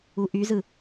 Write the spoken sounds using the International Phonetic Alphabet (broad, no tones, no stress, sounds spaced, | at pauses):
u ʔ y z ɯ